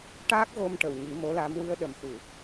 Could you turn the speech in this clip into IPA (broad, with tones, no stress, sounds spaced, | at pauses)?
ʈ aː˦˥ k̚ ɣ o˧ m ʈ ə˨˩˨ w ɲ i˨˩˦ m o˧˥ l a˧˥ m w ɨ˧ ə̯ ɗ ə˨˩ m x u˨˩˨